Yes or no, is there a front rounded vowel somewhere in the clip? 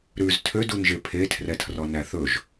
yes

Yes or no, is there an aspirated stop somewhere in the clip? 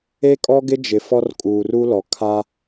yes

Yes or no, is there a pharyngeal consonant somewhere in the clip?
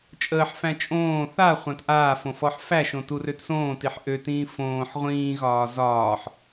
yes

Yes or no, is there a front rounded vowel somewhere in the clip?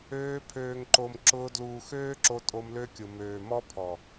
yes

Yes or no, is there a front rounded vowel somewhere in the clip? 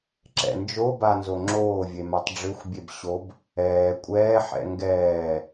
yes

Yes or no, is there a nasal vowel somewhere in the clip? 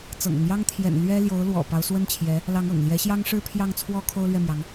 no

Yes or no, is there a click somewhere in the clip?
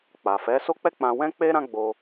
no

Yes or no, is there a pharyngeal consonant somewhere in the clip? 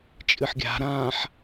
yes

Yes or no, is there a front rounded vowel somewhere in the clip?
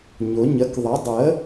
no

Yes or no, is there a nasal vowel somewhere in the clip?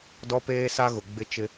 no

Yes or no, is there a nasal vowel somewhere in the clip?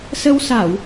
no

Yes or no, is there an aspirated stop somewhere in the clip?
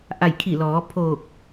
yes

